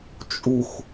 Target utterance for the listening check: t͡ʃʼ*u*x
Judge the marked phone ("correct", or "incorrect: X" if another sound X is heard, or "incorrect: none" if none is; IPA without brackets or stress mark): correct